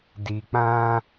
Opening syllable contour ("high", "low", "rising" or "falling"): low